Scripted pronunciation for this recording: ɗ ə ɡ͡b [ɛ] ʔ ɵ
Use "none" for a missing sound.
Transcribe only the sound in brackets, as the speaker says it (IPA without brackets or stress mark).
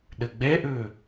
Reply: ɛ